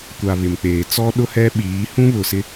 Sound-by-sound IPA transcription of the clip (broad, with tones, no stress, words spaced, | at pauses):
kʷa˨ βɪ˨mk͡peː˨ t͡sɔ˦ɗʊ˦hɛ˦ɓiː˨˦ hũ˦βʊ˨sɪ˦